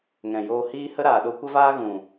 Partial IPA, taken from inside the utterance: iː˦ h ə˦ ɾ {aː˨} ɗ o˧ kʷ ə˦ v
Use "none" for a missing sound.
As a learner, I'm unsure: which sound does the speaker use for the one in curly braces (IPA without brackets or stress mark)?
aː˨